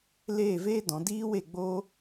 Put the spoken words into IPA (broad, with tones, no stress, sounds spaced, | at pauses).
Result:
l eː˦˨ v eː˦ d ɔ̃˨˦ d iː˦ w e˦˨ ɡ͡b oː˦